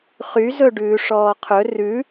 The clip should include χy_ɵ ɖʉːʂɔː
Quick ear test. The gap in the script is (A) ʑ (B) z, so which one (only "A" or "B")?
B